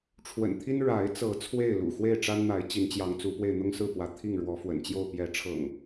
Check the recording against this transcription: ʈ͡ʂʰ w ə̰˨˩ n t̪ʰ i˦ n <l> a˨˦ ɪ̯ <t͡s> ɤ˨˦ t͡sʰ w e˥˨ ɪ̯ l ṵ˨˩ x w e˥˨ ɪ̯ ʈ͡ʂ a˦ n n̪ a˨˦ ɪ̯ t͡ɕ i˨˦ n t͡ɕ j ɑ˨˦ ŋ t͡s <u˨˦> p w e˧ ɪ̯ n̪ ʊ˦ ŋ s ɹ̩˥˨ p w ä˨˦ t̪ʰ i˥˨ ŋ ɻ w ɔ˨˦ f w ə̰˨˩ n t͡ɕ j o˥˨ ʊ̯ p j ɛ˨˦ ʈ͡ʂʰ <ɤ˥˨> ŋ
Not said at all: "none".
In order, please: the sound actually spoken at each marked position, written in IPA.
ɻ, t͡s, u˨˦, ɤ̰˨˩

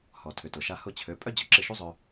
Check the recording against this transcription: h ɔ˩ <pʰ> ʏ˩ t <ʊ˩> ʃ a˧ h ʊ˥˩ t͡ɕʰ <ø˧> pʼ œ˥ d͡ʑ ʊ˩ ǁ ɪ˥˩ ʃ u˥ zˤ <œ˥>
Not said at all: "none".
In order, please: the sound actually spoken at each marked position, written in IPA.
tʰ, ʊ˩, ø˩˥, œ˧

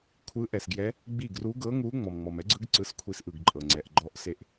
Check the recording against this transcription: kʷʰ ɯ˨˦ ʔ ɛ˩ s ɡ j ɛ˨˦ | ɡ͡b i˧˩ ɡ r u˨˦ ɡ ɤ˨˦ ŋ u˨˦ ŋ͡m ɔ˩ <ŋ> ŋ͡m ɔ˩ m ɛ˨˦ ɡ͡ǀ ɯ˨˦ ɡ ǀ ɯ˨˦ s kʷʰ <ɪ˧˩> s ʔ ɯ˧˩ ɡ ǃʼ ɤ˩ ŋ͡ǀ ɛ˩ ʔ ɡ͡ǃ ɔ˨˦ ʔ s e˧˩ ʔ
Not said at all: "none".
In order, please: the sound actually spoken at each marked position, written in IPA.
m, i˧˩

